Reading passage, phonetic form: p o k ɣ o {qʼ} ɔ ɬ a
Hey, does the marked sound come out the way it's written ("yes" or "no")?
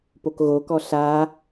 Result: no